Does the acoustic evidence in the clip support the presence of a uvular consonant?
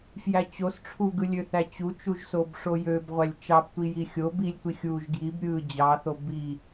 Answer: yes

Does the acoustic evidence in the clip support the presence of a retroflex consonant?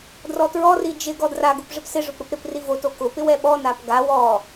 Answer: yes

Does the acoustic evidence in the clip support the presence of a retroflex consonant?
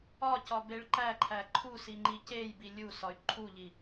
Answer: yes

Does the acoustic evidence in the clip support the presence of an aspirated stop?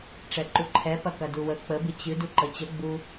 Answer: yes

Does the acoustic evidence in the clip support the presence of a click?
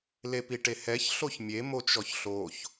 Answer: no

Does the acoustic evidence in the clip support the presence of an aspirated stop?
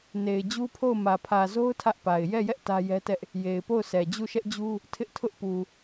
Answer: yes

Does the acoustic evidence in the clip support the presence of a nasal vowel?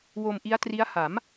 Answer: no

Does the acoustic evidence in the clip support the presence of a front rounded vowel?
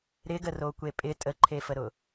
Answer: no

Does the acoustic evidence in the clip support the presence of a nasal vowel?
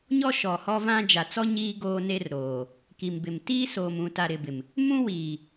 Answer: yes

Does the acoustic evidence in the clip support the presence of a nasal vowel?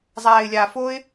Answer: no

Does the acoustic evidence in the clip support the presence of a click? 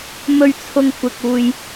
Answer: no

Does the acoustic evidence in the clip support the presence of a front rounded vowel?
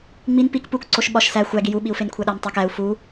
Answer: no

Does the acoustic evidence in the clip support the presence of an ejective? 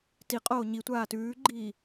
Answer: yes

